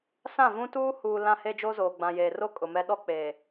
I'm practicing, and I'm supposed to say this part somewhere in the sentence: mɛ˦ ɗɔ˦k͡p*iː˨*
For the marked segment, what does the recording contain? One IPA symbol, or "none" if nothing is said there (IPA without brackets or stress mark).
eː˨